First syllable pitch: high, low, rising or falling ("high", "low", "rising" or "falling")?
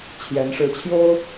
rising